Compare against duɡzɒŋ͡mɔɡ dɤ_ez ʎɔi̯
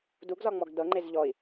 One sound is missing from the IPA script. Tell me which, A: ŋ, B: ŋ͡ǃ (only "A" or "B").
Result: B